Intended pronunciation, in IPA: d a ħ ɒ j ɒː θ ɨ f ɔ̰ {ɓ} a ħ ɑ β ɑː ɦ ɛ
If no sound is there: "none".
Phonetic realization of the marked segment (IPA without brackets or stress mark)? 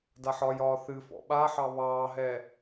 ɓ